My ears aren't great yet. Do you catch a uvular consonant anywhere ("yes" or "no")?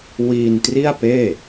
no